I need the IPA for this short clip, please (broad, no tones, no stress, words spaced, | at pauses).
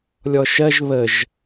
lʲɔʃɜʒ βəʒ